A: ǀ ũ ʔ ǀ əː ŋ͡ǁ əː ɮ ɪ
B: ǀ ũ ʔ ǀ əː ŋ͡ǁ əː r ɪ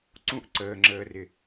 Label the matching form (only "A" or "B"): B